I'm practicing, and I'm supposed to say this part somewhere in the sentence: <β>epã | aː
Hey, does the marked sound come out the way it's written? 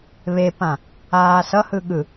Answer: yes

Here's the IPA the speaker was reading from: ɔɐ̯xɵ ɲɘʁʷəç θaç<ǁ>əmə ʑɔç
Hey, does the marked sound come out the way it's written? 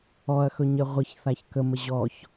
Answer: no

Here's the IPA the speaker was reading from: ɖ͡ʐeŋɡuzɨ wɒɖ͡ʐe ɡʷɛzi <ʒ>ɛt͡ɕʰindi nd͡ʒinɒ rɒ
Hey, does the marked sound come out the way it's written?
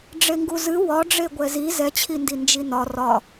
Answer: no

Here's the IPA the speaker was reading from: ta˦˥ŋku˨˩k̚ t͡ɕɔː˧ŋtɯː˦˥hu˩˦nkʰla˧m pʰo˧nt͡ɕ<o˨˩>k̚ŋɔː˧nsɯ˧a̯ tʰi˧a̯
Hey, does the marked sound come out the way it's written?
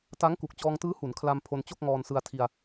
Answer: no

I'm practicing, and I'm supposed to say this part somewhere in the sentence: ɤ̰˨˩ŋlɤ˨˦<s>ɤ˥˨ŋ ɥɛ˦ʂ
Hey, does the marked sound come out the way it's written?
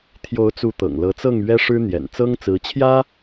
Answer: no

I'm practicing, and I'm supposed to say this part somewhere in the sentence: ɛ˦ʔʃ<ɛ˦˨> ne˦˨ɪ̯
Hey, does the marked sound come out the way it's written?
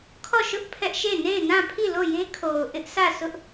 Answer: no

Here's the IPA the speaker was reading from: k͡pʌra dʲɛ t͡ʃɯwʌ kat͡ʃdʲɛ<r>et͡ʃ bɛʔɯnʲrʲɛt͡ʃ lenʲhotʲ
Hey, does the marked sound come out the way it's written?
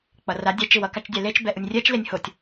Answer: no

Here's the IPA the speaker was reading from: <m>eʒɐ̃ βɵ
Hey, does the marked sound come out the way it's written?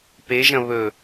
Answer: no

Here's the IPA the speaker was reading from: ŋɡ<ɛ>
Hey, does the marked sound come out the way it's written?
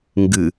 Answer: no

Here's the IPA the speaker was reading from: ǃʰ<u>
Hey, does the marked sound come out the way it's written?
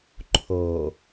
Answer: no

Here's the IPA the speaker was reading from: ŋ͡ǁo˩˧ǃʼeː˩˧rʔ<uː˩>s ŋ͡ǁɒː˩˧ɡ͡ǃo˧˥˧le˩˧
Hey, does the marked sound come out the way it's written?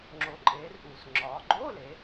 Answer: yes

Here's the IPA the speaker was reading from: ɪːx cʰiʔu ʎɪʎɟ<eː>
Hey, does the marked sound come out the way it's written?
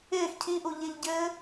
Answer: no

